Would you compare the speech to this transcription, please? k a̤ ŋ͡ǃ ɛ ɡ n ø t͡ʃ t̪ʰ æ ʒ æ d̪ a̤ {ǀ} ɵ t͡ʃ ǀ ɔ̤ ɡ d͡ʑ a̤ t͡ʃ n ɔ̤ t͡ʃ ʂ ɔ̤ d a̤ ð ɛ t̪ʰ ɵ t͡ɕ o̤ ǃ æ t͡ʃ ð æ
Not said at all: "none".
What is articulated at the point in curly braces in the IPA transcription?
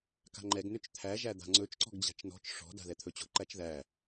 ŋ͡ǀ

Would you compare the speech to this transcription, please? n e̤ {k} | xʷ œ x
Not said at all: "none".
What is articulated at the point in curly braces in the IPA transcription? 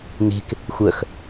k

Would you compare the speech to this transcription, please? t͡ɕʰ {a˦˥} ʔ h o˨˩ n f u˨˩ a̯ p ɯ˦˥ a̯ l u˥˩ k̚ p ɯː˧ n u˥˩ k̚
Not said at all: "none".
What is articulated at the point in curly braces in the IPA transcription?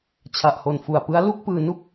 a˨˩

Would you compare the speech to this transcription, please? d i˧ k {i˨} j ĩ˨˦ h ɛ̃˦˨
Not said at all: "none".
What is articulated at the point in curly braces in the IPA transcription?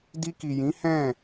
i˨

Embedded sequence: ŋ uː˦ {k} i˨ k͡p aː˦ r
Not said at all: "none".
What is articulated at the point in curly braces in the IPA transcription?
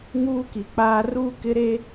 k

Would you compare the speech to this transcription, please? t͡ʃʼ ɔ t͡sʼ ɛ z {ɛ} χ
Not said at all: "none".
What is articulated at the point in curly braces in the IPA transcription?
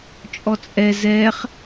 ɛ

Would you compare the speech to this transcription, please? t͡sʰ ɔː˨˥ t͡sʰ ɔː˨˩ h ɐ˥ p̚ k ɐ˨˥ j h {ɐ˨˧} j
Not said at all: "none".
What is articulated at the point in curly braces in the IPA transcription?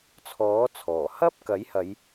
ɐ˨˧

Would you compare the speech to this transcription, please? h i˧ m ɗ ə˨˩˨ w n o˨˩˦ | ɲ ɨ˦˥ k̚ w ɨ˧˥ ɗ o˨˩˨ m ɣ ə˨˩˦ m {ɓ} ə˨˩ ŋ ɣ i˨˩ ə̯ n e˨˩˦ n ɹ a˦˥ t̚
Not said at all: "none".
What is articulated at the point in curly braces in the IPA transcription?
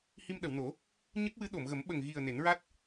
ɓ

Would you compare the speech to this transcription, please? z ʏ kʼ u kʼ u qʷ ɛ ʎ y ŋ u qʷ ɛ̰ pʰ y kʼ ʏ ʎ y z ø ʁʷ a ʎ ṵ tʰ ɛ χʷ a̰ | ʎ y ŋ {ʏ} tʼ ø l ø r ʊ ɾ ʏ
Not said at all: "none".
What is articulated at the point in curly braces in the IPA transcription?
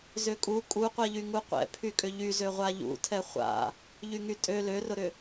y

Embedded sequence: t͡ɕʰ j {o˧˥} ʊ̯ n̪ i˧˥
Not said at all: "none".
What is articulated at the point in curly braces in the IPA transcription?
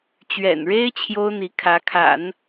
o˥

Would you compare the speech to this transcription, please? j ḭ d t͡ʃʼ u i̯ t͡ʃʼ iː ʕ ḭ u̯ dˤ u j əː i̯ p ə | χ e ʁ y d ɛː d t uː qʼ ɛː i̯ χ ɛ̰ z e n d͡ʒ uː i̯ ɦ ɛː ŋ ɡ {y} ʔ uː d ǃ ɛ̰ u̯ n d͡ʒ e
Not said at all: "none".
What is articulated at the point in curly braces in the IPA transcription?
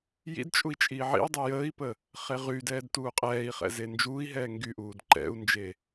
y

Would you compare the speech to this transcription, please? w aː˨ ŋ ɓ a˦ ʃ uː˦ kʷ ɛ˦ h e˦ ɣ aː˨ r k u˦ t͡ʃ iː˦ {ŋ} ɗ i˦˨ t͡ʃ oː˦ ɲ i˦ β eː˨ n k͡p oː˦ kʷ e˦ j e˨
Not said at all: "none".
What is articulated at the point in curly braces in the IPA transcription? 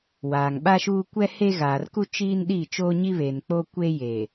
n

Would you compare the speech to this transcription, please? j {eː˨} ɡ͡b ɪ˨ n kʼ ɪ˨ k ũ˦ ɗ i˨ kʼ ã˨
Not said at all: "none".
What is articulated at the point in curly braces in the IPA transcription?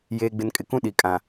eː˨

